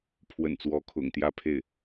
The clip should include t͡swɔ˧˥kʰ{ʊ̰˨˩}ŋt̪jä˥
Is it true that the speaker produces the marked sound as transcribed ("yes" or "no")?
yes